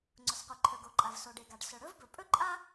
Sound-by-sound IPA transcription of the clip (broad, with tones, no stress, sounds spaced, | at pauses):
ŋ͡ǀ ʊ˩ s qʷ e˩ ǃʰ ɵ˩ ɡ o˩ ǃʼ a˩ v s o˩ ɖ e˩ ɡ a˩ ɖ s ɵ˩ ɽ ɵ˥ v b ɵ˩ pʼ ɵ˥ ǃʼ a˥